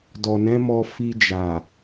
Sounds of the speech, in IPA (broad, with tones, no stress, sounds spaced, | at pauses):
d ɔ˨ n ɛ̃˨˦ m ɔ˧ f i˧ d͡ʒ a˨